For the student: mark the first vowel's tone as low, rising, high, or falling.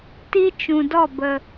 high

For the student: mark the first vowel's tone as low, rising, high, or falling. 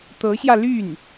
rising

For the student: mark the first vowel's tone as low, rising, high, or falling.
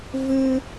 high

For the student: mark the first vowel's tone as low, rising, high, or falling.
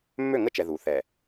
falling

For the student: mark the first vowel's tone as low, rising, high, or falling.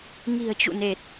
low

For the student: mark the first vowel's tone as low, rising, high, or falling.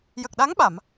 low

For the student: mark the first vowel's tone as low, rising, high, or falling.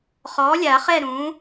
rising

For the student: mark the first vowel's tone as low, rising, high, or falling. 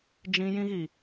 high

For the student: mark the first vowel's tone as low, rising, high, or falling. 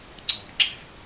low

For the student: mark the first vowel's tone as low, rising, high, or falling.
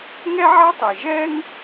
high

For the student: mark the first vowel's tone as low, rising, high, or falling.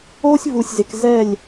high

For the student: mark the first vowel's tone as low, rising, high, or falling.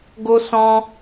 high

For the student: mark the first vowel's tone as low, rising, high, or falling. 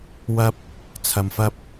high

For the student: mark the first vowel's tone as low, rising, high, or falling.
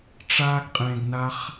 high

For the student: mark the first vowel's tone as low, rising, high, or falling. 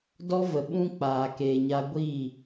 high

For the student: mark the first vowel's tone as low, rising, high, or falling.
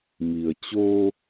low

